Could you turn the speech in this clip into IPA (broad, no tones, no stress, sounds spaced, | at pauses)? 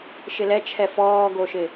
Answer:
ʃ ɪ l ɛ t͡ʃʰ ɛ f ɔː ɡ o ʃ ɪ